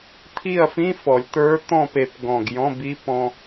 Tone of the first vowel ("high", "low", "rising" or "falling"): falling